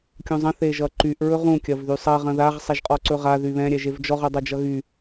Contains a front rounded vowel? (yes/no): yes